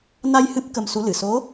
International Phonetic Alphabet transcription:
n a˧ j h ɨ˦˥ p̚ k ə˧ m s u˧˥ l ɨ˨˩˨ s o˧˥

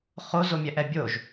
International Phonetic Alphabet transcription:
χ o z o mʲ ɛ ʔ ɛ bʲ o ʒ

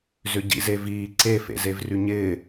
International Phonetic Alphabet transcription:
z ʏ ɟ ḭ z e v iː ǀ e f ḛ z e v r y ɲ ɪː

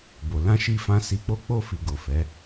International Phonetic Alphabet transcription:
b o˨ l ã˧ ʃ i˧ f ã˧ s i˧ k͡p o˦ k͡p o˦˨ f i˨ ɡ o˨ f ɛ˨˦

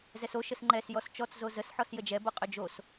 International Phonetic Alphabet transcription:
z ɛ s o ʃ ə s ŋ͡ǃ ɛ s j ɔ s t͡ʃ ɔ t͡s z o z ə s ħ ɔ s j ə d͡ʒ ɛ b o qʼ ʏ d͡ʒ o s

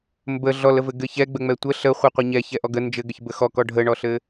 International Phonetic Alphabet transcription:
m b ə ɮ ɔ l ə v ɘ ɡ ɘ ç ɛ ɡ͡b ə ŋ͡m ɛ tʷ ə ɬ ə χʷ ɘ qʷ ɘ ɲ ɛ ç ɛ ʔ ɔ ɡ ə n d͡ʒ ɘ ɡ ə ç b ə x ɔ k ɔ ɖʱ ə ɳ ɔ ɬ ɘ

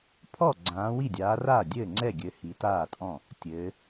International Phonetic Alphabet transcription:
pʰ ɔ˥˩ ɡ͡ǀ ãː˨˦ w i˥˩ dʲ aː˨˦ r aː˥˩ dʲ ɘː˥˩ ŋ͡ǀ ɛ˥˩ ɡʲ ɘ˨˦ h i˨˦ t aː˥˩ tʼ ɔ̃˥˩ | tʲ ɘː˨˦

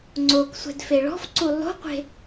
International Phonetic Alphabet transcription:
ŋ͡ǀ o k sʷ ɛ̤ d f e ɭ ɔ̤ f ǀ u lˠ o̤ qʷ e̤

